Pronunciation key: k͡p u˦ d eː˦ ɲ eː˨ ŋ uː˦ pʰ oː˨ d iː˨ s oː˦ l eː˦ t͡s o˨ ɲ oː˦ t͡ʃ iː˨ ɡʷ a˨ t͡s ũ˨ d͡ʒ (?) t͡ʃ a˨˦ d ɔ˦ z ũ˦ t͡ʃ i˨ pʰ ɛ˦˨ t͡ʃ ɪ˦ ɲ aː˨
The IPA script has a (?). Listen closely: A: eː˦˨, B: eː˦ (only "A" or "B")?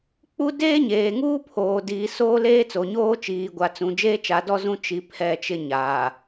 B